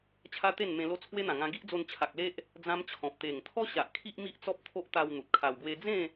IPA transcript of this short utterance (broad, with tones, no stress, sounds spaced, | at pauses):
t͡ɕʰ a˦ t̪ e˥˧ n m ẽ˧ l o˦ t͡sʰ w e˦ n̪ ã˨˩ ŋ ã˧ ɡ i˦ ʔ d͡z o˧ n t͡ɕʰ a˨ k̚ l e˦ ʔ | d͡z ã˦ m t͡ɕʰ ɔ̃˨ p̚ t̪ e˨˩ ŋ t̪ʰ ɔ˦ ɕ a˨ ʔ kʰ i˦ ʔ m i˦ ʔ t͡s ɔ˦ p̚ t̪ʰ o˦ ʔ t̪ a˧ w n̪ u˨ t̚ kʰ a˧ w ɡ w e˦ d͡z ẽ˥˧